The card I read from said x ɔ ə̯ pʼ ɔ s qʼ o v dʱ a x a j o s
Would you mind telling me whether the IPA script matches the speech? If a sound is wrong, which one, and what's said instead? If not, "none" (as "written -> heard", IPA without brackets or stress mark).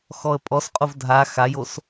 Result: none